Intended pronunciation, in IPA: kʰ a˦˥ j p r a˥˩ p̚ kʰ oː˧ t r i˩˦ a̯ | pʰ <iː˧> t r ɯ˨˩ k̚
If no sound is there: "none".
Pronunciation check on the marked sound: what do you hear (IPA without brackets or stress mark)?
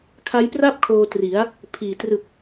iː˨˩